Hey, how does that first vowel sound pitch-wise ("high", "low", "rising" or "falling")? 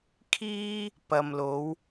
high